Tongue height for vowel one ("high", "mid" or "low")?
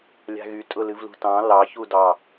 low